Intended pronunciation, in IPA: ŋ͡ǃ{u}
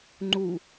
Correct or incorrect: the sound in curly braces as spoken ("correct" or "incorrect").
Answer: correct